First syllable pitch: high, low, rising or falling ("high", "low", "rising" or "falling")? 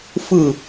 falling